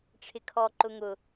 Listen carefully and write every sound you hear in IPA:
ʈ͡ʂʰ ɪ kʰ ɔ ǃ ʊ ŋ ʊ

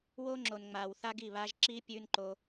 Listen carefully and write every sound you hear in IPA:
w oː˦ ŋ͡ǁ o˨ n ŋ͡m aː˨ w θ a˦ ɡ i˦˨ β aː˦ ʒ ǁ iː˦ pʲ ʉː˦ n ǃ o˦

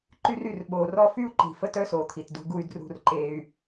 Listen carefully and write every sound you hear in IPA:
ǃ y˦ r y˦˨ r ɓ oː˨ r ɔ˦ f y˦ u̯ ǃ i̤˨ f ə˦ t œ˦ s oː˨ t̪ʰ i˨ t d ṳ˦ ɡ u˦ y̯ d r ṳ˦ r ǃ eː˦ y̯

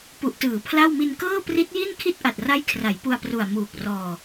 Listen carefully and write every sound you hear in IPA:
p u˨˩ ʔ t ɯː˩˦ pʰ l a˥˩ w m i˧ n k ɤː˥˩ p r i˦˥ t̚ j i˥˩ n kʰ i˥˩ t̚ ʔ a˨˩ t̚ r a˦˥ j kʰ r a˩˦ j p u˧ a̯ p r u˨˩ a̯ m uː˨˩ k̚ r ɔː˧

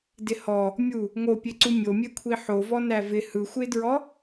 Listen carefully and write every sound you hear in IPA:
d ɪ h ɔ | mʲ u | ŋ o pʲ e ǀ u mʲ o mʲ e kʷʰ i ħ o v ɔ n æ v ɪ h ɯ xʷ e d ɹ ɔ

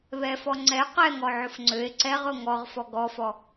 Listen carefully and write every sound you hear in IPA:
β ɛ f ɔ ŋ͡ǀ ɛ q ɛ ŋ ɔ ʕ ʊ f ŋ͡ǀ ø e̯ ǀ ɛ ʁ ʊ ŋ ɔ ʁ f ɔ ɡ ɔ f ɔ

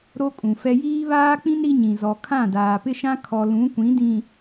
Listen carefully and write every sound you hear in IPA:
ɾ o˦ kʼ ũ˨ f ɛ˦ j iː˦ β aː˦ k͡p ĩ˦ n ɾ i˦ ɲ ĩ˨ z ɔ˨ kʰ ã˦˨ d aː˨ p ɪ˦ ʃ ã˦ kʰ ɔ˨ l ũ˨˦ kʷ ĩ˨˦ d ĩ˨

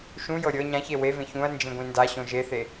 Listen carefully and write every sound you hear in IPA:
ʃ ũ j ɤ ɾʲ ɤ ɲ ã ç e w e v ẽ ç ũ ɐ̯ n d͡ʒ ĩ ɡʷ ĩ n d a ɕ õ ʒ e θ e

